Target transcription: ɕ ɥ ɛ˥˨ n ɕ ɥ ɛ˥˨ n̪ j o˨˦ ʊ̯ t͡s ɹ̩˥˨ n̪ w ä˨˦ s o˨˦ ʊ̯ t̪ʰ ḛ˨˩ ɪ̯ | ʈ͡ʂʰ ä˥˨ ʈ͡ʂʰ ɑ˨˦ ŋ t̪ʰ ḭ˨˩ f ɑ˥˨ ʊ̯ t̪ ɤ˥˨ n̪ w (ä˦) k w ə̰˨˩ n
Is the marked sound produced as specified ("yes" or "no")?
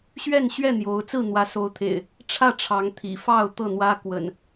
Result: yes